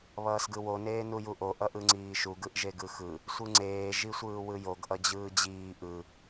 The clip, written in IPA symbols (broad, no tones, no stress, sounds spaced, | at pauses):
β ʌː s ɡ ɯ w o n eː n u j u ʔ o ʔ ʌ ʔ ɯ ŋ͡ǀ iː ʃ u ɡ ɯ ʔ ʒ e ɡ ɯ x ɯ | sʷ ɯ ŋ͡ǀ eː ʒ i sʷ ɯː w ɯ j o ɡ ʔ ʌ d͡ʑ ɯː d͡ʑ iː ʔ ɯ